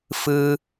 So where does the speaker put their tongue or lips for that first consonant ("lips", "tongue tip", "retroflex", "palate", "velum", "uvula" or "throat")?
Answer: lips